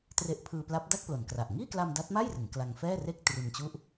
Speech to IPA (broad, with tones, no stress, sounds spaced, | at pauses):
t r e˦˥ ʔ pʰ ɯː˧ p l a˦˥ p̚ d a˥˩ k̚ p l o˩˦ n k r a˨˩ ʔ ŋ iː˥˩ k l a˧ m d a˦˥ t̚ m a˥˩ j r ɯ˩˦ ŋ k l a˧ ŋ f ɛː˥˩ r e˥˩ k̚ t r i˧ n t͡ɕ u˦˥ ʔ